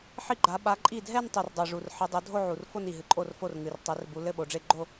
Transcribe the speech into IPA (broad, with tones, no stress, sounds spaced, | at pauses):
ħ i˥˩ ɡ͡ǃ a˨˦ ɓ a˨˦ ǃʼ i˥˩ dʱ ɛ˥˧ n tˤ u˨˩ r dˤ o˨˩ ʐ u˨˩ r ħ ɘ˨˦ dˤ o˨˦ dʱ o˥˧ ʕ u˨˩ r f o˥˧ n i˨˩ ɦ ɨ˨˩ ǃʼ o˥˩ r f o˥˩ r ŋ ɨ˨˩ r tˤ ɛ˨˦ r b u˨˦ l ɘ˥˧ ɓ o˨˦ ɖ͡ʐ e˥˧ ɡ͡ǃ o˥˧